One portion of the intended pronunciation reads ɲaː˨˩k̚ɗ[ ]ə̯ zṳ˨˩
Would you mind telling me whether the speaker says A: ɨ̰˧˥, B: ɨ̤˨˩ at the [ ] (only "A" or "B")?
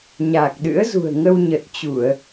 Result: A